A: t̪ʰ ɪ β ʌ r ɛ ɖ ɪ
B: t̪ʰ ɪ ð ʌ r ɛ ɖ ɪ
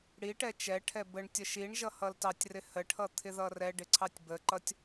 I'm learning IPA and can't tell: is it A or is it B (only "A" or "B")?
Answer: B